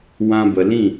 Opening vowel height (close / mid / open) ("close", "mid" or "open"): open